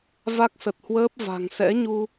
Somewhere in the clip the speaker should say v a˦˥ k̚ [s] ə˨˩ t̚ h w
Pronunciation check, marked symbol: correct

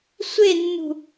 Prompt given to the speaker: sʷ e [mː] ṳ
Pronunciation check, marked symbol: incorrect: nː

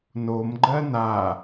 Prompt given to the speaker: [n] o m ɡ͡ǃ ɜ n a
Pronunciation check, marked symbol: correct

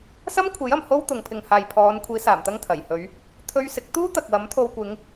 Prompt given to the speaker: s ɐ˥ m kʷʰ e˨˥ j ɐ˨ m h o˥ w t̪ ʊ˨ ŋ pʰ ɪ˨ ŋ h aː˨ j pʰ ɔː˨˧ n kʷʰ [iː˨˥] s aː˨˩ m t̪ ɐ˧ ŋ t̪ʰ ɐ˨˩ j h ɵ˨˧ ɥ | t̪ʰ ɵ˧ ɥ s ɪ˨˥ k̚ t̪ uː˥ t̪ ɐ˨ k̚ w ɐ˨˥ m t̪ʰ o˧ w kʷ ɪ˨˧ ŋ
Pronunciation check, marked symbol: correct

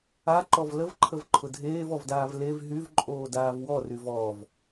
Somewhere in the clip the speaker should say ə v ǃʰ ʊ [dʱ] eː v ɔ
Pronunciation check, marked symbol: correct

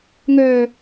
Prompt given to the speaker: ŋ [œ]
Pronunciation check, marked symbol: correct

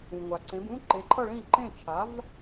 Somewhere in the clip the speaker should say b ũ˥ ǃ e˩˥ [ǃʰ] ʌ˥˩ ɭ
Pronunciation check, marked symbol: correct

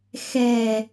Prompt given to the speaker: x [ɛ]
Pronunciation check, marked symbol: correct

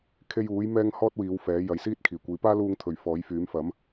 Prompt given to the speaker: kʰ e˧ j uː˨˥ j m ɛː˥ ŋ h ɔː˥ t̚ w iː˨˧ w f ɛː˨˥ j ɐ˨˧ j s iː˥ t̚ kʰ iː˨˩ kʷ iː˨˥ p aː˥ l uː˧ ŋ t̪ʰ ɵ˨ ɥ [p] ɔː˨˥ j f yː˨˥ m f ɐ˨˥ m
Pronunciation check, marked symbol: incorrect: f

